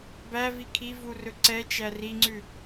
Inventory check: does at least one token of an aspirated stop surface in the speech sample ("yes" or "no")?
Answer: yes